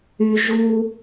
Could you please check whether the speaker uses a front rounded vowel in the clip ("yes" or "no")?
yes